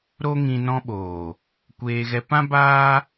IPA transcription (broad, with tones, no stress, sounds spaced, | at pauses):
ɾ o˦ ŋ ĩ˧ n ɔ̃˧ ɓ oː˨ | kʷ eː˧ ɣ ɛ˧ p ã˦ b aː˦